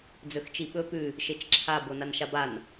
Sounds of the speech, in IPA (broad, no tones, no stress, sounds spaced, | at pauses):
d͡z ɵ x t͡ʃ i ɓ ɵ p ʉ | ʃ e t͡ʃ ǁʰ a b o n a n ʃ a b a n